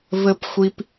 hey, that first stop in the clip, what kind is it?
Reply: plain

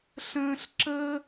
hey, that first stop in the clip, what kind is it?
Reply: click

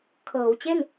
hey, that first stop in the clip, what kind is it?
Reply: aspirated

